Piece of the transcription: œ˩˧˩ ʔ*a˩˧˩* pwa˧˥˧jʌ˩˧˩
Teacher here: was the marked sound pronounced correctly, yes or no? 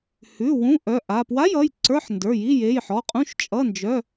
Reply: yes